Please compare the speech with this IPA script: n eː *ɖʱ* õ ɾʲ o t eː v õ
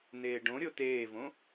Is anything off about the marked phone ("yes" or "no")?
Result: yes